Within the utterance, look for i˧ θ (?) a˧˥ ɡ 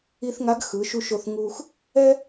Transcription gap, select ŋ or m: ŋ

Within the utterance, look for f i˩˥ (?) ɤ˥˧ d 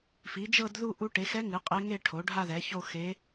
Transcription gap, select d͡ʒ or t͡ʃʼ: d͡ʒ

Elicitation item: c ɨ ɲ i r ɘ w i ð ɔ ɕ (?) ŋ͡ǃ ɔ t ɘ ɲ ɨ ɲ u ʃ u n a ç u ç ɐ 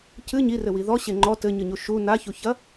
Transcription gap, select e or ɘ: e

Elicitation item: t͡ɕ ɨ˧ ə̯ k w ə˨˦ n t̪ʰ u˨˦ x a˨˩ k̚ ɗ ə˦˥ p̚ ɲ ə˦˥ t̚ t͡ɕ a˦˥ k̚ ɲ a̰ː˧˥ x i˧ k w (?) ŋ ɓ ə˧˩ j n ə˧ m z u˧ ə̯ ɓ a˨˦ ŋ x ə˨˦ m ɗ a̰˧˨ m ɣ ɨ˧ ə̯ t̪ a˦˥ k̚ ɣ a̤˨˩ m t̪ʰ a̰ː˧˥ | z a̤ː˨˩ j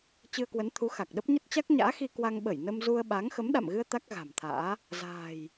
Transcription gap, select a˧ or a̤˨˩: a˧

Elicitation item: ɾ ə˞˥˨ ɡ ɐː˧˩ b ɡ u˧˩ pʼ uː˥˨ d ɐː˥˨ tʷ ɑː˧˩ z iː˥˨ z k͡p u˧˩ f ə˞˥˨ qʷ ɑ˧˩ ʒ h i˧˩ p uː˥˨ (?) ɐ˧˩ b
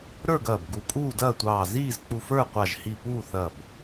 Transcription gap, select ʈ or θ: θ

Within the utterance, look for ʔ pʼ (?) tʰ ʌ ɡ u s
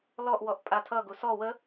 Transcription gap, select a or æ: a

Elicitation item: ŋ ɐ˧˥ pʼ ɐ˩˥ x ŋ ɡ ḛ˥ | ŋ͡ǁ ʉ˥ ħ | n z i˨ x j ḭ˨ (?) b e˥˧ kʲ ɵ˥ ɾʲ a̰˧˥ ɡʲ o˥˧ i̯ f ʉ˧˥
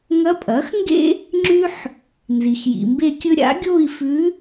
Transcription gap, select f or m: m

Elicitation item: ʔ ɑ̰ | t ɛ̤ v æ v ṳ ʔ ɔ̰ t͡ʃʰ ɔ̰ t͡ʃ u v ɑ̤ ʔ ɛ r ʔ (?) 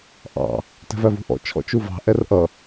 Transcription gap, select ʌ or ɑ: ʌ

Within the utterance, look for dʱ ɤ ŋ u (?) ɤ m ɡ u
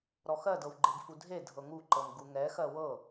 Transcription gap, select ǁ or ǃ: ǃ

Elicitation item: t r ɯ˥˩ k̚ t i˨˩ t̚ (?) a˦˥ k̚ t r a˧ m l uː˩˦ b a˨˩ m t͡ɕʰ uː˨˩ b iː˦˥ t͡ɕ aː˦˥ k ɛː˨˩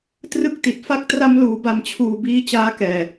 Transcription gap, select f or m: f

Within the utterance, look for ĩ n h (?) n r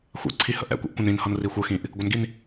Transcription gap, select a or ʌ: ʌ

